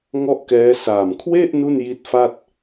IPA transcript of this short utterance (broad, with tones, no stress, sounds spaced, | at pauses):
ŋ ɔ˥˩ ʔ k ɛː˦˥ s aː˨˩ m kʰ w e˥˩ ʔ n u˥˩ n j i˦˥ t̚ f a˥˩ t̚